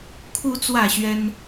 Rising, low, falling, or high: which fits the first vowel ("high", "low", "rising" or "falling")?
rising